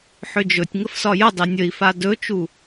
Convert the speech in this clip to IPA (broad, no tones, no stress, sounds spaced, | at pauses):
ħ ʏ d͡ʒ ɵ tʲ ŋ ə f s ɒ j ə dˤ e nʲ ə i̯ f a d ɵ t͡ʃ u